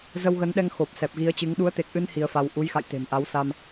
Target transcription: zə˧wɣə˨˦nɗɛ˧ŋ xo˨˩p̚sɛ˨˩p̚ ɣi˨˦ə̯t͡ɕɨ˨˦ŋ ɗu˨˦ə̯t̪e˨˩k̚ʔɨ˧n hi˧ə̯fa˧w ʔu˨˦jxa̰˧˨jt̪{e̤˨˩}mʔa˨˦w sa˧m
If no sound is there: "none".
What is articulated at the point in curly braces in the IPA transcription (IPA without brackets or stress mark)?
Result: e̤˨˩